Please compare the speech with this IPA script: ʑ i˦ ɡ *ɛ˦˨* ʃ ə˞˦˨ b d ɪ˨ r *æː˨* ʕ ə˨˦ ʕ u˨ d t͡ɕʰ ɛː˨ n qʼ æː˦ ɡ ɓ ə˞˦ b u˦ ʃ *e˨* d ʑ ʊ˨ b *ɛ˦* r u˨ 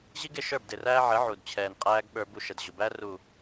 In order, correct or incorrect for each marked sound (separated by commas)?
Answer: incorrect, incorrect, incorrect, incorrect